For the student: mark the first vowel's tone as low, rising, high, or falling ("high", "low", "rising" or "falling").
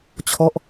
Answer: falling